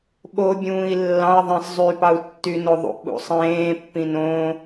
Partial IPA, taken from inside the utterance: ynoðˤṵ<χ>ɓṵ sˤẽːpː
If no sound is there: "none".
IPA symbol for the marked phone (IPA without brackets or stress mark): ʔ